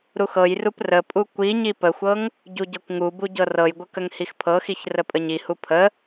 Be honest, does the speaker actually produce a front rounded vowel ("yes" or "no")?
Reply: no